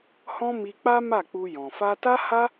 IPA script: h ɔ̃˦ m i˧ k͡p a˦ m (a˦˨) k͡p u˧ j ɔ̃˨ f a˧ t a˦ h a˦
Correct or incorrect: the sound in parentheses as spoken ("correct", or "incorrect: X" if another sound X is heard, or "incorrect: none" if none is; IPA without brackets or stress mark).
correct